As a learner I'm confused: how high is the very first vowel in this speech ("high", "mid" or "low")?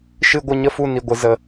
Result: high